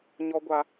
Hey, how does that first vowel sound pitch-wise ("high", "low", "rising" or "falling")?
high